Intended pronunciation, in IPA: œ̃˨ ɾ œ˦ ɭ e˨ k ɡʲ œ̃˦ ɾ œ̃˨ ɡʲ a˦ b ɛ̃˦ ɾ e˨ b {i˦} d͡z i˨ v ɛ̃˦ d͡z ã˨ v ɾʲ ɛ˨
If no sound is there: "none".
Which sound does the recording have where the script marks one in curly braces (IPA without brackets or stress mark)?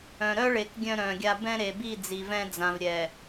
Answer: i˦˨